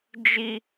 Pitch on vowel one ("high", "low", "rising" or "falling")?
high